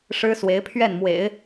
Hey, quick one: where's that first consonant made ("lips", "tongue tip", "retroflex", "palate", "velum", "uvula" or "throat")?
retroflex